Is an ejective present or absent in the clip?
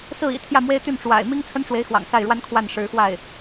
absent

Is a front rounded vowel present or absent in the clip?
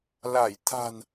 absent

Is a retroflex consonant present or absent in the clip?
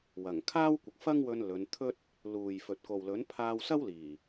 absent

